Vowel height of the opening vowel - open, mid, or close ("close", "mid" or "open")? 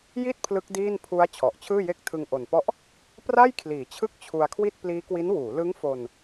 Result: close